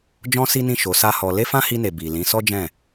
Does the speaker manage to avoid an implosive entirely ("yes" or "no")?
yes